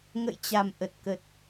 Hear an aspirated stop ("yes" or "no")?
no